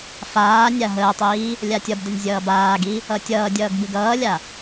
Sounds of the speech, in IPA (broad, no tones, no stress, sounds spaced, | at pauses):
f aː nʲ a ɦ əː tˤ iː | lʲ a tʲ ʌ b d ə nʲ zʲ ʌː b aː ɡ i | ʌ tʲ ʌː dʲ ʌː ɡ b ɨ ɡ ʌː lʲ a